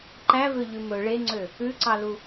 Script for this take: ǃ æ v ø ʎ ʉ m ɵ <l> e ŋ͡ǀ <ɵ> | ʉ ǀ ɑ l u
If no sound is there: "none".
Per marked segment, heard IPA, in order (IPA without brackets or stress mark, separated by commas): ɭ, ø